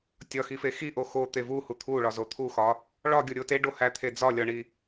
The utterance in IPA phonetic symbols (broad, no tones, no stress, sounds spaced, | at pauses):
tʲ ɒ x i f e x i ʔ o x o t̪ e v u h u t̪ʰ u ɭ ɒ z o t̪ʰ u x ɒ | ɭ ɒ ɡʲ o ɾʲ o t e ɖ o h æ t̪ʰ e d͡z ɒ lʲ ɒ ɳ i